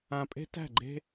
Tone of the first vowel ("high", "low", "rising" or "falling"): low